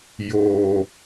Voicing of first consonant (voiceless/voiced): voiced